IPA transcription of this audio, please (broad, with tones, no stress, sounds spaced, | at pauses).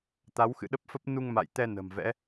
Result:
t̪ a˨˦ w x ɨ̰˧˨ ɗ ə˦˥ p̚ f ə˦˥ p̚ n u˧ ŋ m a̰˧˨ j t̪ ɛ˧ n ə̤˨˩ m v ɛ̰˧˥